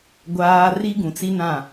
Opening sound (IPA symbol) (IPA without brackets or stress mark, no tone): ɡʷ